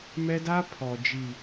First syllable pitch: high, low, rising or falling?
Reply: high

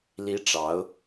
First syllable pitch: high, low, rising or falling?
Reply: rising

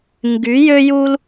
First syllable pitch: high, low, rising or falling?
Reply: rising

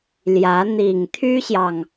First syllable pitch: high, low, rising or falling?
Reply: rising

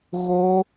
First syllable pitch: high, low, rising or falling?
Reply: high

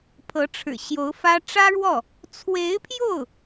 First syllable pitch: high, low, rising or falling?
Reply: rising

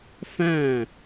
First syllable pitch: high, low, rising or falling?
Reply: falling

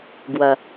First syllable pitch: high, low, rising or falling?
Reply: low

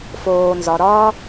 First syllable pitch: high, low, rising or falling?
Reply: low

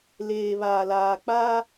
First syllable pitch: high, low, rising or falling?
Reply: low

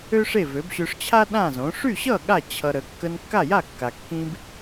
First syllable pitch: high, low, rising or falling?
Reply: high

